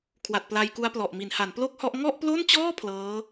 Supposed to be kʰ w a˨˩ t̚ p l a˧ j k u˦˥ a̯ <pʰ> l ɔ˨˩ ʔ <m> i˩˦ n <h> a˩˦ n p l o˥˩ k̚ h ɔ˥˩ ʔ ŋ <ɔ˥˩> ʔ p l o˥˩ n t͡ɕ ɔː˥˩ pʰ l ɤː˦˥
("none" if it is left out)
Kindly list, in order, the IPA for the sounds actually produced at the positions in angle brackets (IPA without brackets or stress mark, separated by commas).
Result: p, m, h, ɔ˥˩